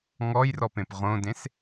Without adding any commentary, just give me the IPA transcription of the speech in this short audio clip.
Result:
ŋɔjrɔpẽp ʁõdẽs

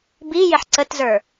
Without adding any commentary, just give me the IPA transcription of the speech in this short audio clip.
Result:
bijɪħ ǀətzə˞

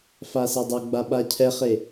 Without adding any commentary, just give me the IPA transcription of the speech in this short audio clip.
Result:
fasedˤœɡ͡ba ɓacʰɛχe

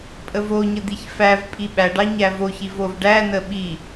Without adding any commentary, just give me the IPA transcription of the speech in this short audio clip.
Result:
pʼəvoɲə d̪içfævpʼi ɓæɖɑ ɲævoçiv ovɖænə ɓi

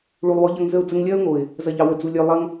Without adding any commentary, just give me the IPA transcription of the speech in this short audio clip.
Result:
ɭu˨lˠwɔ˨˦ ʎɐ˧ŋ zə˧ʊ̯d͡zə˧ŋlʲɐː˦ʊ̯ŋo˨ɪ̯ | zɐ˨ʎɑ˨wə˨d͡zu˨ lʲœ˧ lˠɐ˦ŋ

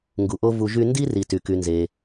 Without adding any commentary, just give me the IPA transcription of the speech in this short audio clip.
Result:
ŋɡu˨ʔo˥ vu˦ʒy˥ ndi˥ ri˨ty˩ky˨nze˩

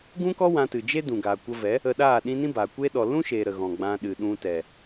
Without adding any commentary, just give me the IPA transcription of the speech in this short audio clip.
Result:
ɡũ˦kɔ˦ wã˧tɨ˨d͡ʒe˦ dũ˨ɡaː˨kʷə˧vɛ˨˦ | ə˧ɗaː˦˨ ɗĩ˧ nĩ˦baː˨kʷeː˦ ɗɔ˨lũ˦ʃeː˨ ɾə˨ɣɔ̃˨ ɡ͡bã˧ɗɨ˨ɗũ˧tɛ˨

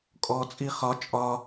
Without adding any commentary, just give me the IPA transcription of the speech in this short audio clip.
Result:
kʼɔt͡sʼi χɒ t͡ʃʼɒ

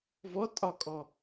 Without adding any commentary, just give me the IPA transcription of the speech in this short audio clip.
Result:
vɔ tʼɒkʼɔ

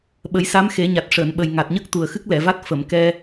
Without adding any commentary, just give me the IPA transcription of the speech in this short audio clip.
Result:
ɓə˨˩˦jsa˧˥mxe˨˩˦ɲa˨˩t̚ ʂəː˨˩˨nɓə˨˩jŋa˨˩t̚ɲə˦˥k̚ t̪u˨˩ə̯xɨ˦˥k̚lɛ˨˩˨va˦˥t̚ fə˨˩˨mkɛ˧

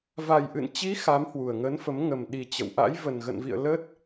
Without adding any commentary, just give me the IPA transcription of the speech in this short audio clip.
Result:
va˨˩jʔɨ̰˧˨n t͡ɕi˨˦ xa˨˦mhwu˨˩ə̯ŋə˨˦nfə˨˦m ŋə˨˩mɗi˨˩ t͡ɕə̰˧˨wʔa̰˧˥j və˨˩nɣə̰˧˨nvḭ˧˨ə̯ lə˦˥t̚

